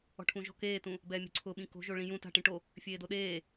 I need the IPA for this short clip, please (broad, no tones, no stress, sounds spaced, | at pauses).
ɔ̤ ʈʰ ũ ʒ ɔ̤ k eː t ũ | b ɛː mʲ o̤ ǀʰ ʊ ɓ ĩ k o̤ ʒ o ɭ ĩ j ũ t a̤ ʈ ĩ ʈ o | fʲ eː d o ɗ eː